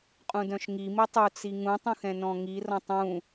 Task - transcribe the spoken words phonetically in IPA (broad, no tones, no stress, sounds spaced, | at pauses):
qʼ ũ d œ̃ ʃ ŋ i m i tˤ u t͡s i ŋ ũ tˤ ũ x ɛ̃ n ɔ̃ ŋ i r ɔ̃ tˤ ũ